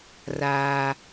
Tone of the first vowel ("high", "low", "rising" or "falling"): high